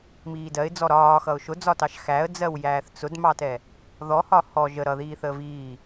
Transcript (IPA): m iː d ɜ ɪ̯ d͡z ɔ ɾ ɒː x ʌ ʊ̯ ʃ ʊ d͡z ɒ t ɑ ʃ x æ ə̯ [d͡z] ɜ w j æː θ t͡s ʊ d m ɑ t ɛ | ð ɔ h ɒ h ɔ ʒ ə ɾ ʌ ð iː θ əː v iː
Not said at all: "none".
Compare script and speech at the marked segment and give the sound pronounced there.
d͡z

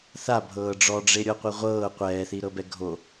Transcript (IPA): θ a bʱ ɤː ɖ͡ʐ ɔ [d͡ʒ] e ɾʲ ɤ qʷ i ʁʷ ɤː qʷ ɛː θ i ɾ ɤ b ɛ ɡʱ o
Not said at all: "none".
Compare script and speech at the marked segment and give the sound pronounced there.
ɖ͡ʐ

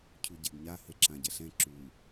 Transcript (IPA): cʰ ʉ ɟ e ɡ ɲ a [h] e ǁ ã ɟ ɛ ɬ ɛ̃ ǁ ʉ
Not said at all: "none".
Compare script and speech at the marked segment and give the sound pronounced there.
h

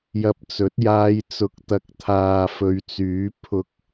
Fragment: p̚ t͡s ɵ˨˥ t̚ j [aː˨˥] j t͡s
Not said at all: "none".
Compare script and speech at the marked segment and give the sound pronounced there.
aː˧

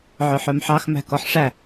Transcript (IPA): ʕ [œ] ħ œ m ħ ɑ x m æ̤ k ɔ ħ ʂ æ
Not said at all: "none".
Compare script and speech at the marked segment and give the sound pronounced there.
œ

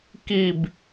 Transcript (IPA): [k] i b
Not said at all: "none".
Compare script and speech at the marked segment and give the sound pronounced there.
k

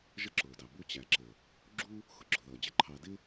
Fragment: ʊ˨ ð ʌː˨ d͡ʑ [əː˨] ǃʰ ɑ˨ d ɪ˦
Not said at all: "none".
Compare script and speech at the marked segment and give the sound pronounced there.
ə˨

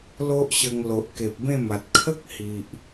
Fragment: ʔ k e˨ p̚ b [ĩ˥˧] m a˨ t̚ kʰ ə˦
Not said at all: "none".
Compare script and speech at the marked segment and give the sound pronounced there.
ẽ˥˧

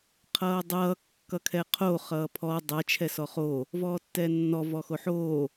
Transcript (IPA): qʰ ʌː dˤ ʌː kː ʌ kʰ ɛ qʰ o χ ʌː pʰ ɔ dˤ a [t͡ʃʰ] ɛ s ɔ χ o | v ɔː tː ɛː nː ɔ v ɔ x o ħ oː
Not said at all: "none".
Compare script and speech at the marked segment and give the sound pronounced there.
t͡ʃʰ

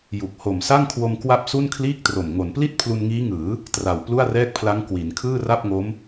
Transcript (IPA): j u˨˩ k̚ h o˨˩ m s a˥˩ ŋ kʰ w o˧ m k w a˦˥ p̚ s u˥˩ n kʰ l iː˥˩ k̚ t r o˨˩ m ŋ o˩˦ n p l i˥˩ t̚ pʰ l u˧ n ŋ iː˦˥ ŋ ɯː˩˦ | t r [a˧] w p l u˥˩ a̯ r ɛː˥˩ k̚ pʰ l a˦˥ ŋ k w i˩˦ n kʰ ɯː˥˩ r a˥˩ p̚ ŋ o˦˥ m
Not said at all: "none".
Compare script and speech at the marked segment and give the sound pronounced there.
a˨˩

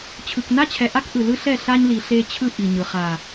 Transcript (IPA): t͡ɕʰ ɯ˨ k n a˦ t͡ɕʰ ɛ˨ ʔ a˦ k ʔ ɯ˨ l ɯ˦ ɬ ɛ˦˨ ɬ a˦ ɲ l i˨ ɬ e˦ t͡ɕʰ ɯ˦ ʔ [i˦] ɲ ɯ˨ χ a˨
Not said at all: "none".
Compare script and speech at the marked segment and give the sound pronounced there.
i˨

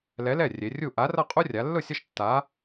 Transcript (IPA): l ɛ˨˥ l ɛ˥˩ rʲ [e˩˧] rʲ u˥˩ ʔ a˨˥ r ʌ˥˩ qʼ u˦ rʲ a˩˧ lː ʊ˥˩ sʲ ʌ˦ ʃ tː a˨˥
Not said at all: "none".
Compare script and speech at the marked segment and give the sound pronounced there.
e˩˧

